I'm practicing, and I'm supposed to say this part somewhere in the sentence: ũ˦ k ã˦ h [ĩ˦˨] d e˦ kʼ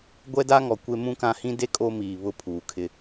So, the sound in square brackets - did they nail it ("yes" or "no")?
no